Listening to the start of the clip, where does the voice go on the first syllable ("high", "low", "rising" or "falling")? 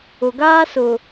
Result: low